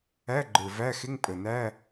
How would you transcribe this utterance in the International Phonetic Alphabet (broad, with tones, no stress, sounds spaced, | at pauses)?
æ˧˥˧ ɡ͡ǃ ə˞˨˩ v æ˧˥˧ x ɪ˧˥˧ ŋ pʼ ə˨˩ n æ˧˥˧